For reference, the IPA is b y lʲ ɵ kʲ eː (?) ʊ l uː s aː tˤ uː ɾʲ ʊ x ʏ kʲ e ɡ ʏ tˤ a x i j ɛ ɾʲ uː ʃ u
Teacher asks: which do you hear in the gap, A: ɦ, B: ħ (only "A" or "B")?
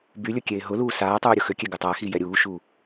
A